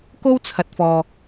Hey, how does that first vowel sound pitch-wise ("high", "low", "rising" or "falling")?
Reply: high